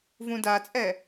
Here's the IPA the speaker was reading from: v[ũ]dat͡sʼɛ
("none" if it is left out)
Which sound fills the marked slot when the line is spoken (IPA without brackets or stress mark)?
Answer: ũ